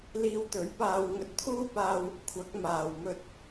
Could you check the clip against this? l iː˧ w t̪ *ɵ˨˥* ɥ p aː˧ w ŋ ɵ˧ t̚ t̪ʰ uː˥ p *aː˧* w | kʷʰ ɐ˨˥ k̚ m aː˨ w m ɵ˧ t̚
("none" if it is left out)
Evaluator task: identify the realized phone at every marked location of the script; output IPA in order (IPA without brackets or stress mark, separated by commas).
ɵ˨˥, aː˧